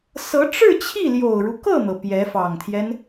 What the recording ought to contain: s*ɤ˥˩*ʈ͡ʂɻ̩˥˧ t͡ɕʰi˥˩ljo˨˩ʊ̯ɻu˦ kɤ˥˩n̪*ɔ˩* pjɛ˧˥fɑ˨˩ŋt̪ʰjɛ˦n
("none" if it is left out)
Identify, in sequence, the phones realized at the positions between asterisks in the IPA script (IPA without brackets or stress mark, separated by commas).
ɤ˧˥, ɤ˩